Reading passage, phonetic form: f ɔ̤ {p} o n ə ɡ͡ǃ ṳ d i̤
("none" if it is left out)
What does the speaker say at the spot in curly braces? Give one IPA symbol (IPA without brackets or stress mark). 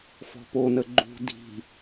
p